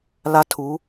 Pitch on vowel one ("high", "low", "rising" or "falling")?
high